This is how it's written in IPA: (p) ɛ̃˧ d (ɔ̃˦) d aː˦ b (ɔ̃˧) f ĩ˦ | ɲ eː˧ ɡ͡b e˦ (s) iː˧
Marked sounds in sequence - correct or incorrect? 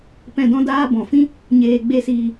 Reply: correct, correct, incorrect, correct

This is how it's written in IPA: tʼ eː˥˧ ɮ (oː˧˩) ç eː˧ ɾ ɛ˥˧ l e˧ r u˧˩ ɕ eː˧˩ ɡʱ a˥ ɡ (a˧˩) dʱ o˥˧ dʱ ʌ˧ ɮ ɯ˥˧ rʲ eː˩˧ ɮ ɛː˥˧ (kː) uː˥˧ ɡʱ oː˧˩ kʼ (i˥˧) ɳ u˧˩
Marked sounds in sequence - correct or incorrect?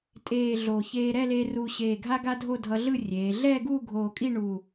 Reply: incorrect, incorrect, incorrect, correct

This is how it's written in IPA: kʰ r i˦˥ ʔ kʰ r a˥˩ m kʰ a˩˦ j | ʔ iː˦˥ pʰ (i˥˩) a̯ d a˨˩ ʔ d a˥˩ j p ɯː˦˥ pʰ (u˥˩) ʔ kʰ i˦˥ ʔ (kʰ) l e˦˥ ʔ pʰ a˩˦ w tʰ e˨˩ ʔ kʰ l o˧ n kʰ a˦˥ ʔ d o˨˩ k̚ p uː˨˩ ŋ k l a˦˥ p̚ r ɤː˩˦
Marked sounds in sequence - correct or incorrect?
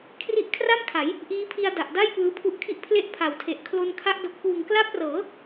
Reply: incorrect, incorrect, incorrect

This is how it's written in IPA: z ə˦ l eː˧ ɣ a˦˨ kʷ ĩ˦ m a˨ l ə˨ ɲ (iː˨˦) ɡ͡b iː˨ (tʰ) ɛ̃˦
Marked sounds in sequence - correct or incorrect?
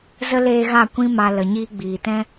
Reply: incorrect, incorrect

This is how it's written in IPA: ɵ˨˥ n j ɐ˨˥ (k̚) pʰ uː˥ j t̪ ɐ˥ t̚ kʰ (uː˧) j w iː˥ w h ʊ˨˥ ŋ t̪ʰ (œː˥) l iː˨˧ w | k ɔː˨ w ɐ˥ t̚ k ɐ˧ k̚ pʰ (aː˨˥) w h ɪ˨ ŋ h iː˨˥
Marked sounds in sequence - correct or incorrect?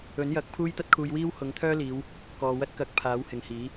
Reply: correct, correct, correct, correct

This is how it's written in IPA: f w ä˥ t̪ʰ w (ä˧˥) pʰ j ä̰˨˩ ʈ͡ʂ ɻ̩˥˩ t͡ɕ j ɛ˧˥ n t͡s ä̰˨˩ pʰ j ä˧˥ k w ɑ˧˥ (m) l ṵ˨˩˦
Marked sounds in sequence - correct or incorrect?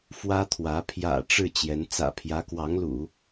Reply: correct, incorrect

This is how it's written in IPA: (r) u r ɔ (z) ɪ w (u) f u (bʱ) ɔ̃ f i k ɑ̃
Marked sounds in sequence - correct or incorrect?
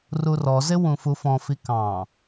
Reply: correct, correct, incorrect, incorrect

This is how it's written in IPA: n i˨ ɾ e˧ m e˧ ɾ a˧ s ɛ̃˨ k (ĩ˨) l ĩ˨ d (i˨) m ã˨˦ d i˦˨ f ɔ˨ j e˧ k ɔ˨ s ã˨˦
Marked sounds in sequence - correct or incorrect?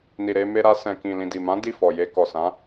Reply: correct, correct

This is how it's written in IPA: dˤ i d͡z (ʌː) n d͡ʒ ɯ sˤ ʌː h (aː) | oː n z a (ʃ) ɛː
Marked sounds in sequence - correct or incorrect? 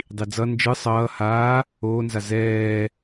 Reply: incorrect, correct, incorrect

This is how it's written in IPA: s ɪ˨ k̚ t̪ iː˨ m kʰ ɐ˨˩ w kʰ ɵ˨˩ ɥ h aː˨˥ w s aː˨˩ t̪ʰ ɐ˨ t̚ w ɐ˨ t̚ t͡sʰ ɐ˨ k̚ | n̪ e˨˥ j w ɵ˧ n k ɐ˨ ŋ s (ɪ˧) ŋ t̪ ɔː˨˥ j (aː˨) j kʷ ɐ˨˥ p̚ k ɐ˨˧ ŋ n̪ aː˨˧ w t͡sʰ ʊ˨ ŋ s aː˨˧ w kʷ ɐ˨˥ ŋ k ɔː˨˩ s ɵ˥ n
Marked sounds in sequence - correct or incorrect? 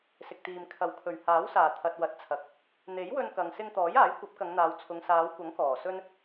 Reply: correct, incorrect

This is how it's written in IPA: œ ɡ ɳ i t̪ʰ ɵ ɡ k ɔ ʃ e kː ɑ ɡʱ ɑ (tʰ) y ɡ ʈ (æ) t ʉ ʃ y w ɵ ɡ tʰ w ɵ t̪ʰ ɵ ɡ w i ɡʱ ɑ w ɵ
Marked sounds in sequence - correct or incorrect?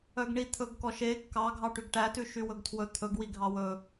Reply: incorrect, correct

